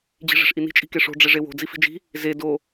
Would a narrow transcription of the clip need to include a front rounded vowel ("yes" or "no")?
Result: no